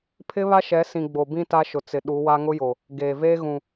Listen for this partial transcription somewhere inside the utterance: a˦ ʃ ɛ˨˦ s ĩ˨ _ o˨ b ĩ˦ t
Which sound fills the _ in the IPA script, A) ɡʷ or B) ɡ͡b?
B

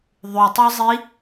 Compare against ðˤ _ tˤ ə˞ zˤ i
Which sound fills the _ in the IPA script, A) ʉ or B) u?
A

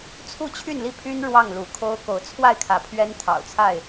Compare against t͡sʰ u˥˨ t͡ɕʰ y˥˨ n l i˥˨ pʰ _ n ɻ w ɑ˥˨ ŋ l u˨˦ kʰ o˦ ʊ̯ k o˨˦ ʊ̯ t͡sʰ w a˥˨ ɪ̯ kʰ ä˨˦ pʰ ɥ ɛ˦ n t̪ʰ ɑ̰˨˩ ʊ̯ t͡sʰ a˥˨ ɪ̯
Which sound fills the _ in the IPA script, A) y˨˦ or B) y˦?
B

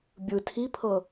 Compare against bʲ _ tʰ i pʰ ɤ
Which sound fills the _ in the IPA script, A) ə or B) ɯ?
B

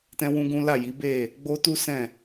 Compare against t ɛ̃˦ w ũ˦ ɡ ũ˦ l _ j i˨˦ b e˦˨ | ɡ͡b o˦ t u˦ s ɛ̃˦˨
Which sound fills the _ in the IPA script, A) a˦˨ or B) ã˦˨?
A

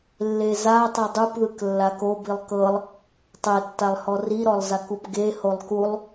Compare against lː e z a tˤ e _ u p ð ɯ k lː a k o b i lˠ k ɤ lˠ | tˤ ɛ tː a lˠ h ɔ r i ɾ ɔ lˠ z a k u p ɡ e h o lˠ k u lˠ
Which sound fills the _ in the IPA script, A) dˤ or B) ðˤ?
A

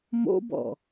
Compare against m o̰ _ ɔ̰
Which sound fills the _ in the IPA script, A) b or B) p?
A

